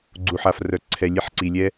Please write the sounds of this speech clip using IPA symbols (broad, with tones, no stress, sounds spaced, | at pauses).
ɡ͡ǀ u˨ ħ a˨ f r œ˨ ǀʰ ɛ˨ lʲ e˦ ħ ǀ i˨ lʲ ɛ˦